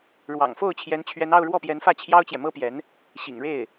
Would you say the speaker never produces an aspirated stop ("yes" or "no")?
no